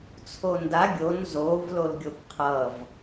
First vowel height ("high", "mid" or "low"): mid